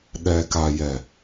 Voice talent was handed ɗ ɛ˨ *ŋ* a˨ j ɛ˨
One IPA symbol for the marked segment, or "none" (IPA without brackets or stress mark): k